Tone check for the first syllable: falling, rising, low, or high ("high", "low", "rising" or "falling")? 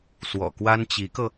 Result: low